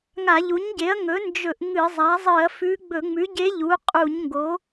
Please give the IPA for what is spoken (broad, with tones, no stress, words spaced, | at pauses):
ŋa˧˩˧ʎu˩˥ɲɟe˩˥ɐ̯ ŋɵ˩˥ nd͡ʒɵ˧˩˧ʔ ŋɨ˧˩˧zˤa˩˥ zˤɨ˧˩˧ɐ̯fʉ˧˥ ɡ͡bɵ˧˩˧ŋ͡mʉ˩˥ɟe˧˥ ʎu˩˥ qʼu˧˩˧ɲŋɡo˩˥